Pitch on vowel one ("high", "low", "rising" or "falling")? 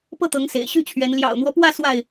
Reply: falling